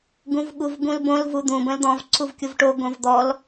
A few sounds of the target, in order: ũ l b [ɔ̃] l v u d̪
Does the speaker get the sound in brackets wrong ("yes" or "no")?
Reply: yes